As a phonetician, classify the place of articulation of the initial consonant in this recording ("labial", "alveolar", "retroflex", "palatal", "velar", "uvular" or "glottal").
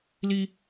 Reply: alveolar